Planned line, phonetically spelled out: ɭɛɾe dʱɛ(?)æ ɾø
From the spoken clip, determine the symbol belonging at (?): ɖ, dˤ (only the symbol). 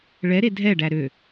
ɖ